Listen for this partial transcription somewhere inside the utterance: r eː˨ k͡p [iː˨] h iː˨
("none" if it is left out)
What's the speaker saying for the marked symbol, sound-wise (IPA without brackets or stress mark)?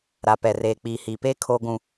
iː˨